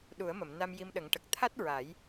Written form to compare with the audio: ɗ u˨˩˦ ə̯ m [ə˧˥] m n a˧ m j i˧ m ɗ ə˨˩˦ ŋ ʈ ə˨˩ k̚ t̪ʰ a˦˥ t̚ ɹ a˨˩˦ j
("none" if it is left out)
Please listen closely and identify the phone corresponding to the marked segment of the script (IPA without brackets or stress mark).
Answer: ə˨˩˨